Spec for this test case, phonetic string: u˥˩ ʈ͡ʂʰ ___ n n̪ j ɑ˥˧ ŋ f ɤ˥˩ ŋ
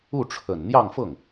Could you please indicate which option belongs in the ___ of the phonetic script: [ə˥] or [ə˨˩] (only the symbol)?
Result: ə˨˩